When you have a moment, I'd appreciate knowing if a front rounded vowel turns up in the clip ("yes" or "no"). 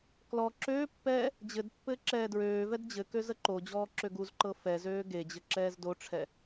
yes